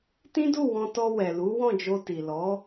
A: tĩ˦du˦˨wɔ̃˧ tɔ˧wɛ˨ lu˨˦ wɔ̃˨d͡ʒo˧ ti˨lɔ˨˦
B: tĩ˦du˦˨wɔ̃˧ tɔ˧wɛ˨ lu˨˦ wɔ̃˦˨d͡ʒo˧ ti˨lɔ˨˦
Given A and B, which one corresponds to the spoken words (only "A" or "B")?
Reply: B